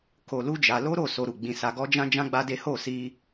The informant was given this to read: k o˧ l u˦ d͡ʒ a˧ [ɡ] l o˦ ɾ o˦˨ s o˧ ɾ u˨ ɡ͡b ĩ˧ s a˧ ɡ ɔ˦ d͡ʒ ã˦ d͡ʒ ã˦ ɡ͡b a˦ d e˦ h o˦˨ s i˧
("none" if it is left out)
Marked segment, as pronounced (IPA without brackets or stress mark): none